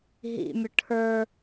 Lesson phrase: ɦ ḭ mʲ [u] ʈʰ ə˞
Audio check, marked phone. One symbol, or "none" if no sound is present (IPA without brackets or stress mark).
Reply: ʊ